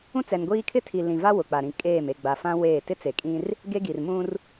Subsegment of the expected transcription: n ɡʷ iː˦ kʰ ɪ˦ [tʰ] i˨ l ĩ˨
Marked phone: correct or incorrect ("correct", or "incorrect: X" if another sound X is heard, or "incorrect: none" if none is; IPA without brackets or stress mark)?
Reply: correct